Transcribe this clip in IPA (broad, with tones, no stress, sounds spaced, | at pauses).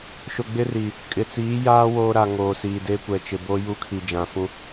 ʃ ʊ˨ ɡ͡b ɪ˦ r i˨ | kʼ ɪ˨ t͡s iː˨˦ j aː˦ w oː˦ ɾ a˨ ŋ oː˨ s iː˨ d eː˦ kʷ ɛ˨ t͡ʃ ɪ˨ b o˦ j u˦ kʰ i˨ d͡ʒ ã˨ f ũ˦